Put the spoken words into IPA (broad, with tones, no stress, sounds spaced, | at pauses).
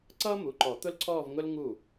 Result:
ǀ ʌː˥ m u˩˧˩ ǃ ɔ˨˩˦ t̪ ʊ˥ l ǀʰ ɔː˥˧ v ŋ ʊ˥ l ŋ u˥˩